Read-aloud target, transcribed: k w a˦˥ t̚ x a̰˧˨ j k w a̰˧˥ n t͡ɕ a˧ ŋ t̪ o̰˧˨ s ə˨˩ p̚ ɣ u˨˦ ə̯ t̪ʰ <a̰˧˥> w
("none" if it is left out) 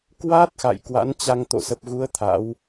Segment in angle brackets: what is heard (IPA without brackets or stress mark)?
a̰˧˥